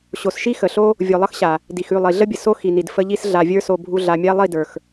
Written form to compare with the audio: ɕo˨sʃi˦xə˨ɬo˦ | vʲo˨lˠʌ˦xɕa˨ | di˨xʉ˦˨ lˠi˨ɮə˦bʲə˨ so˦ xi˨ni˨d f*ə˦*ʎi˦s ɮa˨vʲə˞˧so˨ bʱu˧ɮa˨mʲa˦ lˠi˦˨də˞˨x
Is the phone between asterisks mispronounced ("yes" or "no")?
no